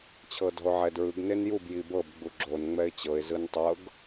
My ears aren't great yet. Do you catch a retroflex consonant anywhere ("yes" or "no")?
no